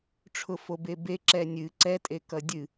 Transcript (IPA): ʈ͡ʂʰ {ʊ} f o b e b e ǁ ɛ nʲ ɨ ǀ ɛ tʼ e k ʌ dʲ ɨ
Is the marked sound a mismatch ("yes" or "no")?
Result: no